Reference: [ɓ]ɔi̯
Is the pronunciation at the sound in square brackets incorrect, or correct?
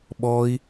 correct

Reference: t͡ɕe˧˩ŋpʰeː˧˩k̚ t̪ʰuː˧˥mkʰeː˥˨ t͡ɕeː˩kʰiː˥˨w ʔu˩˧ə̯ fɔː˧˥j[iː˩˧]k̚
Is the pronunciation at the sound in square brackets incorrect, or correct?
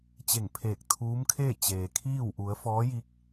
incorrect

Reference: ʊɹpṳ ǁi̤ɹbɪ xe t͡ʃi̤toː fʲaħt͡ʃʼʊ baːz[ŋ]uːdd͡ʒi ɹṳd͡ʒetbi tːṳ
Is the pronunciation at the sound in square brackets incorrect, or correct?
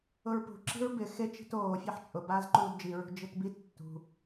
incorrect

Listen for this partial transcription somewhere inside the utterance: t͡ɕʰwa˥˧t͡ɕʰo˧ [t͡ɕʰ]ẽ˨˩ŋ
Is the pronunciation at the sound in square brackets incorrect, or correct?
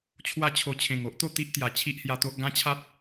correct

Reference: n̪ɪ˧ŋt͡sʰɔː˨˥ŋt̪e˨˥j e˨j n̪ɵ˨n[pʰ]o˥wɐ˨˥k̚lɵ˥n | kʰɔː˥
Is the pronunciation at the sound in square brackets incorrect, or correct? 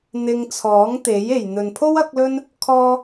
correct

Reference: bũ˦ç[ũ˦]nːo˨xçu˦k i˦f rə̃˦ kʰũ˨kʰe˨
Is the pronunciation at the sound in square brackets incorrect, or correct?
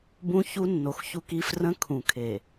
incorrect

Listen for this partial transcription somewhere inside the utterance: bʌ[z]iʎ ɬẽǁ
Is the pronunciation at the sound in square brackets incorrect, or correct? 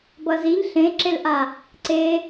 correct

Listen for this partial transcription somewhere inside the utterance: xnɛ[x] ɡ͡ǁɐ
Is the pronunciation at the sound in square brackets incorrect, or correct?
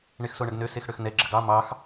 incorrect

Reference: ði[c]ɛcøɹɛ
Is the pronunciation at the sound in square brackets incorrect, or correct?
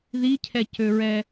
incorrect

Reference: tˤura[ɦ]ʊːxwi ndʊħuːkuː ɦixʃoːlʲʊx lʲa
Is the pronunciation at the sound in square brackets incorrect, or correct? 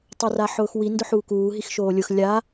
incorrect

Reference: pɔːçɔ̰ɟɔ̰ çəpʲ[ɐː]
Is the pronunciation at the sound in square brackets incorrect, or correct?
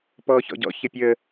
incorrect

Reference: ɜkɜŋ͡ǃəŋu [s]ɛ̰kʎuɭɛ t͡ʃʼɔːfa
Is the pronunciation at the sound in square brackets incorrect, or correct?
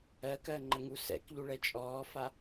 correct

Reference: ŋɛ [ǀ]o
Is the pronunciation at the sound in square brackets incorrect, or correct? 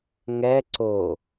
correct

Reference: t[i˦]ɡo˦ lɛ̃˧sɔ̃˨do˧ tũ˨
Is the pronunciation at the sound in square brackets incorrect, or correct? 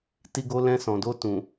correct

